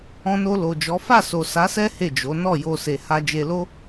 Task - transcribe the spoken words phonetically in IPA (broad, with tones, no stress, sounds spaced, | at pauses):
ɔ̃˧ n o˧ l o˨ d͡ʒ ɔ˨˦ f a˦˨ s o˨ s a˨˦ s ɛ˦ h e˦˨ d͡ʒ o˨˦ n ɔ˦˨ j o˧ s e˨ h a˧ d͡ʒ e˧ l o˦